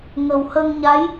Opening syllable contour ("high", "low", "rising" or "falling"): low